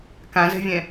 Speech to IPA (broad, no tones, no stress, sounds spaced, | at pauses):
k ã z ɛ̤ vʲ ɛ̃